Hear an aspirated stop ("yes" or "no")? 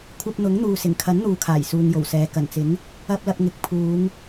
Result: yes